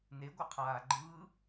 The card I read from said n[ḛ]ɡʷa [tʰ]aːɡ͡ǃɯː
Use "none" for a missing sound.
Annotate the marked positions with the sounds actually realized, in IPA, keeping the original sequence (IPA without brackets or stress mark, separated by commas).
e, qʰ